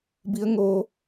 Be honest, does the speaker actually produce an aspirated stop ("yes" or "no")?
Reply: no